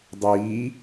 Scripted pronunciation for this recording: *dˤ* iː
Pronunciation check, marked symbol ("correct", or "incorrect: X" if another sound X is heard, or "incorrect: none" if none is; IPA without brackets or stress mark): correct